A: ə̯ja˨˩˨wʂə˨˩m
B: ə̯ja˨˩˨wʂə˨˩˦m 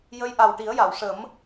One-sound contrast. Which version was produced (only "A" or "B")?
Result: B